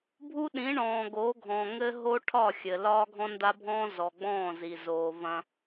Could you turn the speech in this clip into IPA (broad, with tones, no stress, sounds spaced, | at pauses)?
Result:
bʱ u˦ ɗ ĩ˨˦ ɳ ɔ̃ː˨ ɡ o˨˦ ɡʱ ɔ̃˨ ŋ ɘ˦ ɦ o˦ ʈʰ ɒ˦˨ xʲ ɘ˨ l ɒː˦ ɡʱ ɔ̃˦ n d a˦ bʱ ɔ̃ː˦ z ɔ˨ ɡ͡b ɔ̃ː˦˨ z i˨ z oː˨ v ɐ̃˦